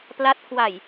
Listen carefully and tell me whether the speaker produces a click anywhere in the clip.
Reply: no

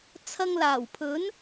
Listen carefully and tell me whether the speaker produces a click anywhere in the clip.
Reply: no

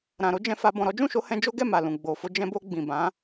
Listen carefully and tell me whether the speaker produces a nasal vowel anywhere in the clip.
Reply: yes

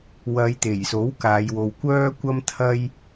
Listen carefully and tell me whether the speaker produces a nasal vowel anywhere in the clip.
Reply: no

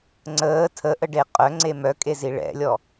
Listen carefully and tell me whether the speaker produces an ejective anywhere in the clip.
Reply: yes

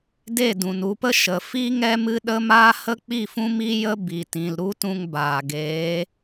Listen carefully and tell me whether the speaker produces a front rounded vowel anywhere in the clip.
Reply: no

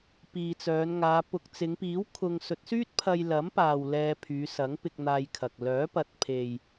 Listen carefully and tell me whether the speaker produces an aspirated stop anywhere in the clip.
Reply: yes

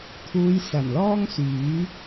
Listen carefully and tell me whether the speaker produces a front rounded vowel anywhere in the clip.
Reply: yes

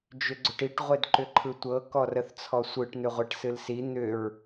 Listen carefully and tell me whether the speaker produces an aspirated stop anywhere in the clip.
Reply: yes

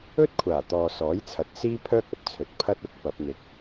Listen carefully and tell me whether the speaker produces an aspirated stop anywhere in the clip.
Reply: yes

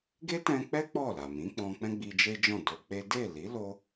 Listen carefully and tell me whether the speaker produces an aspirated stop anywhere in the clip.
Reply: no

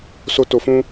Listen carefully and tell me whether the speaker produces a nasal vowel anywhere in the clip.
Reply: yes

